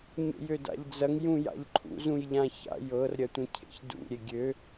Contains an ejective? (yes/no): no